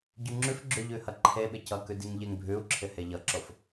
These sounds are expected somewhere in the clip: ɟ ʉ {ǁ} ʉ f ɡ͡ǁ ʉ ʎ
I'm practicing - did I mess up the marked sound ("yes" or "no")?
yes